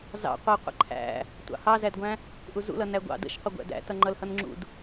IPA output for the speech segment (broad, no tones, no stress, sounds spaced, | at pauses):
z ɑ̰ qʷ æ qʷ ə̰ ǃʰ æ̰ | tʷ ɑ̰ h ɑ z æ d ɡʷ æ̃ | ʔ u z ṵ l ʌ n æ ɡʷ ɑ̰ d ə̰ ʃ qʷ ə ɡʷ æ̰ d æ̰ t ʌ ŋ͡ǃ ʌ l h ʌ n ŋ͡ǁ ṵ d